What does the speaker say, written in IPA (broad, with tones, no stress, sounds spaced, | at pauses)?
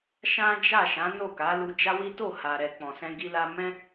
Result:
ʃ ã˦ d͡ʒ a˦˨ ʃ ã˨˦ n o˦˨ k a˨˦ l u˧ d͡ʒ a˦ w i˦ t o˦˨ h a˨ ɾ ɛ˨ k͡p ɔ̃˨ s ɛ̃˧ ɡ i˧ l a˧ m ɛ̃˦